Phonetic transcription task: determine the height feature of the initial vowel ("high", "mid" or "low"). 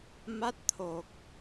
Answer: low